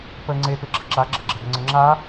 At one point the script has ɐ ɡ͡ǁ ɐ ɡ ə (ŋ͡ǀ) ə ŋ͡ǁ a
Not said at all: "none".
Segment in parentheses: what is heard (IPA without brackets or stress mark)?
ŋ͡ǀ